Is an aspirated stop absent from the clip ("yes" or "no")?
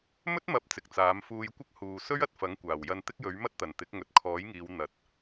no